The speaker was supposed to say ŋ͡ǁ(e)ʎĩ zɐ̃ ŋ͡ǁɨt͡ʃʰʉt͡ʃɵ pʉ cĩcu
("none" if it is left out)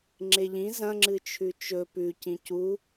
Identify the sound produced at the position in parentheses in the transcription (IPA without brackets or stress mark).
e